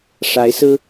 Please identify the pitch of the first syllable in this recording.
rising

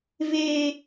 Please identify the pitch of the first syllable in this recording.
high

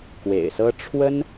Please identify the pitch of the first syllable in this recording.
low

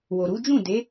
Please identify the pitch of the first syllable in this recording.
low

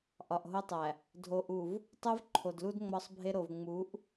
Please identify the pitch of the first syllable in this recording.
low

